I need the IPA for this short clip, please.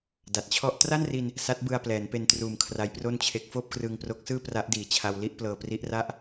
d a˨˩ t̚ t͡ɕʰ ɔ˥˩ ʔ t r a˥˩ n r i˧ n | s a˦˥ t̚ b ɯ˧ a̯ p l ɛː˩˦ n p e˧ n t r uː˨˩ m kʰ r a˦˥ j p r o˥˩ n t͡ɕʰ e˦˥ k̚ f oː˥˩ p̚ k r ɯː˧ ŋ p r o˦˥ k̚ s ɯː˥˩ p r a˦˥ ʔ d iː˨˩ t͡ɕʰ a˧ w l i˥˩ ʔ p l ɤː˧ p r i˦˥ ʔ r a˥˩ ʔ

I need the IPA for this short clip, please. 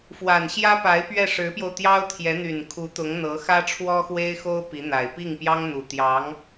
f w a˨˩ n ɕ j ä˥ p a˧˥ ɪ̯ p ɥ ɛ˥˩ ʂ ɻ̩˧˥ p j o˧ ʊ̯ t̪ j ɑ˥ ʊ̯ t̪ʰ j ɛ˧˥ n̪ y˨˩ n kʰ u˧˥ t̪ ʊ˧˥ ŋ n̪ ɤ˧˥ x ä˥ ʈ͡ʂʰ w ɔ˥ x w e˥ ɪ̯ x o˥ ʊ̯ p i˧˥ n̪ a˨˩ ɪ̯ p i˥˩ ŋ p j ɑ˥ ŋ n̪ u˨˩ t̪ j ɑ˧˥ ŋ

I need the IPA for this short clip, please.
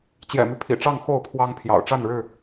t͡ɕ j ɛ̰˨˩ m y˦ pʰ ḭ˨˩ ʈ͡ʂ ɑ˥˨ ŋ x o˥˨ ʊ̯ pʰ w ɑ˦ ŋ pʰ j ɑ̰˨˩ ʊ̯ ʈ͡ʂ a˥˨ n ɻ ɻ̩˥˨

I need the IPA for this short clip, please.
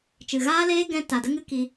t͡ʃ ɨ˨ ɣ aː˦ l eː˦ ɡ ɛ̃˧ t a˨ d ə˦ ŋ ɨ˦ k i˧

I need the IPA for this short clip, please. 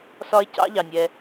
s ɒ˦ e̯ c ɑ̰˥ ʎ ɑ˩ nʲ ɛː˨

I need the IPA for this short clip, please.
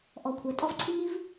ʔ ɔ˨ kʷʰ œ˨ tʼ ɔ˦ v ǀʰ i˦ ŋ i˦ v

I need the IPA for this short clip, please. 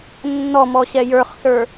nː ɔ m ɔ ɕ ɛ j ə˞ χ s ə˞

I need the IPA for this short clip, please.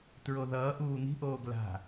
t ɹ o ð ʌː ʔ uː n̪ i̤ ʔ oː ɡ l a̤

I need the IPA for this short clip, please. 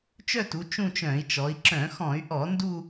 t͡ʃ œ˥˧ t u˩˧ t͡ʃ ũ˥˧ t͡ʃ œ̃˧˩˧ i̯ t͡ʃ ɔ˩˧ i̯ ǁ œ̃˧˩˧ x ɔ̃˧˩˧ y̯ ʔ ɔ˧˩˧ n d u˥˧

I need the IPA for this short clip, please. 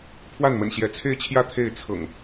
pʰ w a˥˨ n m ə̰˨˩ n ɕ j ɛ˨˦ t͡sʰ e˥˨ ɪ̯ t͡ɕʰ j ä˥˨ t̪ʰ e˥˨ ɪ̯ t͡sʰ ɤ̰˨˩ ŋ

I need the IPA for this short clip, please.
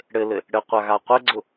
ɽ ɘ l ɘ | ɽ ɘ qʷ a ɣ a qʷ ɘ ɡ͡ǀ ʊ

